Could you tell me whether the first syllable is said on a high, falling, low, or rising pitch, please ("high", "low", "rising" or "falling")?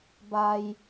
low